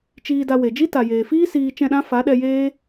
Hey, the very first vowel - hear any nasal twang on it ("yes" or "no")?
no